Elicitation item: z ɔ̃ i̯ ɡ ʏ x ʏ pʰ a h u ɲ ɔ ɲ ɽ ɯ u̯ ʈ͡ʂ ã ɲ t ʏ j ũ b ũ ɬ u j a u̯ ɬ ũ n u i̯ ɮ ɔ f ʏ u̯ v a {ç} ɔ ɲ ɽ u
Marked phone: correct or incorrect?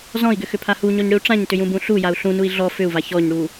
correct